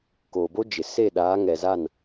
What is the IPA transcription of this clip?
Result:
koː˨bo˦d͡ʒɪ˨ se˦˨ ɗaː˨˦ŋɛ˨za˦˨n

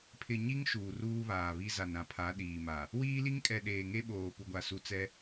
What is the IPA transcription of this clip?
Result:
pʰɪ˨ɲi˦ŋ ʃuː˨ruː˦βaː˨βi˦ za˨nɾã˨pʰa˨˦ ɗiː˨ma˨ | wiː˦li˦ŋ kʼɛ˨ ɗeː˨ŋe˦ɓoː˨ pu˨ɡʷa˨su˨t͡sɛ˦

